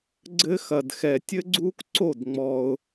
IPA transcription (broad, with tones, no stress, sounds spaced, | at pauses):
ɡ͡ǀ ɘ˦ x ɐ˨ d x ɛ˨ tʲ ɘ˦ ɡ͡ǀ uː˦ k ǀ o˦˨ d ŋ͡m ɔ˦ ʊ̯